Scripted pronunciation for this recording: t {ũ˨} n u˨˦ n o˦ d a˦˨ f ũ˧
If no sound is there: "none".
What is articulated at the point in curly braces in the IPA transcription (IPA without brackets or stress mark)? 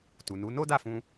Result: u˨